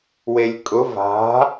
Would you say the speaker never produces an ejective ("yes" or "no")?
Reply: no